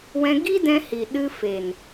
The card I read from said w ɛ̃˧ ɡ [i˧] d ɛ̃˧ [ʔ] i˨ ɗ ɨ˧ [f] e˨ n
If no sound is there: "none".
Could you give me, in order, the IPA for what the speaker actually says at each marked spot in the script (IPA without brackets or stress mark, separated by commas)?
i˦, h, f